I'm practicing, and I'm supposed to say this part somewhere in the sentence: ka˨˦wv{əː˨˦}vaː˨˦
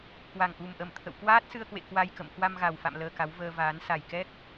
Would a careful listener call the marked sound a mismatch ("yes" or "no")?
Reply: yes